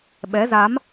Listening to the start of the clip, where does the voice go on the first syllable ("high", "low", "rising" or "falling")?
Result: rising